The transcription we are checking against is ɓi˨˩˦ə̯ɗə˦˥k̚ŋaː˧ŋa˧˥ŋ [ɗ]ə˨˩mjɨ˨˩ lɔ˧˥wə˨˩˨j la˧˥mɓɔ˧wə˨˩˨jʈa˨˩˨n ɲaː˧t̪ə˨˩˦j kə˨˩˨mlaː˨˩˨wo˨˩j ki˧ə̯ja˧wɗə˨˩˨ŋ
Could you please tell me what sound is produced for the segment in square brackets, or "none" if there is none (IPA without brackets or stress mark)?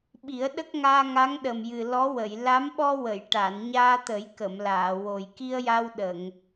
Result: ɗ